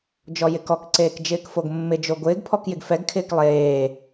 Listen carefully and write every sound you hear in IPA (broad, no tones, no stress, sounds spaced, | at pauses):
d͡ʒ ɔ j ɪ k ɔ k ǀ eː k d͡ʒ ɪː k f o ɡ mː ɪ d͡ʒ o ɡʷ ɪː ɡ pʰ ɔ k j ɪ ɡ f ɛ ɡ kʰ ɪː k lˠ eː